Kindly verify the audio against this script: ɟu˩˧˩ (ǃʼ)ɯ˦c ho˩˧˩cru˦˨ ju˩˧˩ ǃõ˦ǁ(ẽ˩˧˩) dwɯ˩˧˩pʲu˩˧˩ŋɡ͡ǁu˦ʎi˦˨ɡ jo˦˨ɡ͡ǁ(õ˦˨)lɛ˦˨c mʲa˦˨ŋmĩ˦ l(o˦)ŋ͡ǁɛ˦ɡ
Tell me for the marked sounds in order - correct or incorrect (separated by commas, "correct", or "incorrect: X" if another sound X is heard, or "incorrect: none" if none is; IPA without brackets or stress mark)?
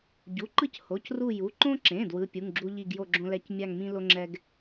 incorrect: ǃ, correct, incorrect: õ˦, correct